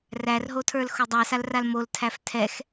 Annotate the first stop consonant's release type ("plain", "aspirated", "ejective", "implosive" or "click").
aspirated